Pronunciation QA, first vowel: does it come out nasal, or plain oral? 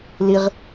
oral